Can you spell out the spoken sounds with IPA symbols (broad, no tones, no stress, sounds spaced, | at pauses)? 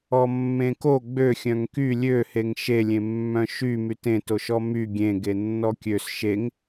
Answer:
ɔ mː ẽ k o ɡ͡b ø xʲ œ̃ ŋ k y lʲ ø h e ŋ ʃ e lʲ ẽ mː œ̃ ʃ y m y t ẽ t o ʃ ɔ m y ɡʲ ẽ ɡ e nː ɔ kʲ ø s ʃ e ŋ